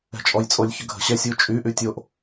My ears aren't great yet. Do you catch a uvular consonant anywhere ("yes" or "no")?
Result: no